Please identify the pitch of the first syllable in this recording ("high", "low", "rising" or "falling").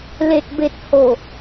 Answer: low